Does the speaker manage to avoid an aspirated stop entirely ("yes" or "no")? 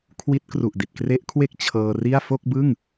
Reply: no